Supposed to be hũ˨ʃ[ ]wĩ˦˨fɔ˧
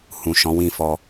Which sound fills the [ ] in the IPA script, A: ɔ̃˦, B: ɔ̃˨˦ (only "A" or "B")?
B